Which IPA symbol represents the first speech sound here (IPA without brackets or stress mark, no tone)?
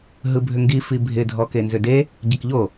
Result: ɦ